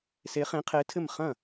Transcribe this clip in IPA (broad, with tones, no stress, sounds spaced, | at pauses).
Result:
s e˧˥ χ ẽ˧˥ qʰ e˧˥ tʰ ɘ˥˩ m χ ɐ̃˥˩